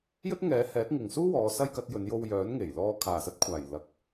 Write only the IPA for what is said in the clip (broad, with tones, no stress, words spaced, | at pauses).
jɵ˥t̚ŋɛː˨˥ hɛː˨˥t̚ŋɪ˨ŋsuː˥wɔː˨˧ sɐ˥jkɐ˨˥t̚ jɵ˨˧njo˧wjœː˨˥n ŋe˨˩jlɔː˧ kʰaː˨˩sɐ˧t̚kʷʰaː˨˩j lɐ˧k̚